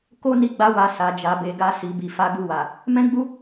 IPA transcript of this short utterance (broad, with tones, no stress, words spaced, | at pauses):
ko˦ ni˦ɡ͡ba˦wa˧ sa˨d͡ʒa˨be˨ɡa˧ si˨bi˨fa˨˦ ɡu˧wa˨ | mɛ̃˦ɡ͡bu˦